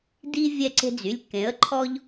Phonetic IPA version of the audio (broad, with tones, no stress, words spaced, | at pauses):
di˦ vʲɛ˦ǀe̤˦d͡zy˩˧˩lʲ kẽ˨˦ə̯ǃʰɔ˦ʎ